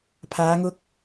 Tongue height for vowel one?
low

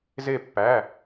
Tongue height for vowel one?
mid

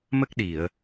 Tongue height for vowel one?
mid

